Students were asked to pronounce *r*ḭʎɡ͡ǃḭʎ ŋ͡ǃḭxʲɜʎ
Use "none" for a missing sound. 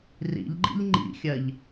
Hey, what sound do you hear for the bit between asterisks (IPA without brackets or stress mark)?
r